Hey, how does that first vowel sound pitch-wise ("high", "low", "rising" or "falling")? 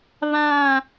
falling